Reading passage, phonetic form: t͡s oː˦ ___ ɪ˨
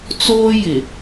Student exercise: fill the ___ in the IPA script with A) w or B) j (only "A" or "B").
B